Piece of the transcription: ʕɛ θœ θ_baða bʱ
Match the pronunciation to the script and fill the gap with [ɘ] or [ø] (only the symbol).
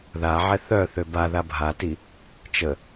ø